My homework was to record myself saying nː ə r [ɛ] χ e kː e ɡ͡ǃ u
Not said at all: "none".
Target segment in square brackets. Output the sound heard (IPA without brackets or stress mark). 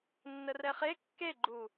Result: ɛ